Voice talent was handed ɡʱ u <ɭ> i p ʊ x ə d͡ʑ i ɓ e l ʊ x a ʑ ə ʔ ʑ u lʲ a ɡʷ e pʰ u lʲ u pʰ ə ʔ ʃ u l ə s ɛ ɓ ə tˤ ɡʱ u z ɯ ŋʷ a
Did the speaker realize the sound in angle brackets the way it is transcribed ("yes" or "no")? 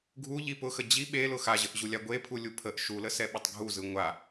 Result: no